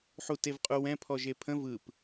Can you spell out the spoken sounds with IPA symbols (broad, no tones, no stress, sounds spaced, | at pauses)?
ħ u t e v qʼ u w ɛ̃ pʰ ɔ ʒ e pʰ ə̃ v ɯ p